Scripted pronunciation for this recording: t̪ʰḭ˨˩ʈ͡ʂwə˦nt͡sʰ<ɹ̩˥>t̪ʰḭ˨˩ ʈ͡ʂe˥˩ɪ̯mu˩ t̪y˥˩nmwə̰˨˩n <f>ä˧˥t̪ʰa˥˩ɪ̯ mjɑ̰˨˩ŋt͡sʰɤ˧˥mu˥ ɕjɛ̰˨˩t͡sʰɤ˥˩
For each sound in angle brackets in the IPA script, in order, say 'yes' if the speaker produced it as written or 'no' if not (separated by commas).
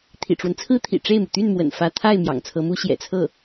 yes, yes